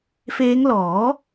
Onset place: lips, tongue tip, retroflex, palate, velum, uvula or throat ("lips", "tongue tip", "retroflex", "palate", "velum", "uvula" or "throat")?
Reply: lips